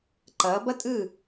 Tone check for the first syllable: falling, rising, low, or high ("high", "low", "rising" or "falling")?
rising